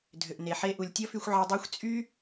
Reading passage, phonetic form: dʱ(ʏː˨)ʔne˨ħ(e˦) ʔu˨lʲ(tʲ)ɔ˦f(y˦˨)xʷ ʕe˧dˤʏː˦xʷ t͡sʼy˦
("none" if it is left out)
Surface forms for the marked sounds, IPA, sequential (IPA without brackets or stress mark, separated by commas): ʏ˨, e˧, tʲ, y˧